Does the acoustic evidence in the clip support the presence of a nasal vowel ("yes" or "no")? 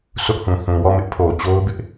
yes